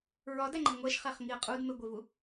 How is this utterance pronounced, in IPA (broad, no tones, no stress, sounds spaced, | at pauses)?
ɹ ɒ d æ ŋ͡ǃ e ŋʷ æ ʃ χ æ χ ŋ i ə̯ qʼ u d m e ɡʷ e v u